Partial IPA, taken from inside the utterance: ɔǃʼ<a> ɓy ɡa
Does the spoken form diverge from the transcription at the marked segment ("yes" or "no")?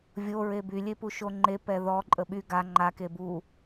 yes